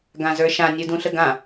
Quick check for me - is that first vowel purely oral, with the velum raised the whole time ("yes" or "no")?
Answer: no